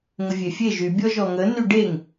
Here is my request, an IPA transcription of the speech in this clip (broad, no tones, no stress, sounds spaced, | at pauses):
ŋ ə vʲ e fʲ e ʒ y bʲ ɔ ʒ ɔ ŋ ə n y ɖ e ŋ